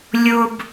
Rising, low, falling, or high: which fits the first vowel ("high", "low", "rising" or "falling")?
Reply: high